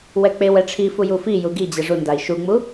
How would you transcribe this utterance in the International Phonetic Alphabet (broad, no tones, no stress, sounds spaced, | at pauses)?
w ɛ k͡p e w ɛ ʈ͡ʂʰ i f u j u f i j u ɡ i d͡ʑ ɛ ʐ u n d a i̯ ʃ u ŋ͡m u